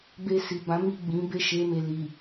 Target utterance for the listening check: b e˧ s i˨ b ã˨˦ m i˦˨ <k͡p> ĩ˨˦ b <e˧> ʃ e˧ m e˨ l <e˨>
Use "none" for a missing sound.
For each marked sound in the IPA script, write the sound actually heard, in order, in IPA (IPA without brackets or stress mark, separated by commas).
ɡ͡b, e˦˨, i˨